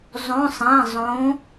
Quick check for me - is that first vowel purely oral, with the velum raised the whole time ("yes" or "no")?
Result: no